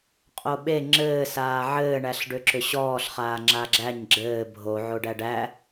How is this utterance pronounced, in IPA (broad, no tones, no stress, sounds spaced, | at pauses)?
qʼ o ɓ e ŋ͡ǁ ɘː s aː ʕ ɘː ɳ æ ɬ ɖ ʏ ǁ ʏ ɕ ɔː ɬ χ aː ŋ͡ǁ a ɡ͡ǁ æ ɲ ɡ͡ǁ ɘː bʱ o ʕ o ɖ æ ɖ æ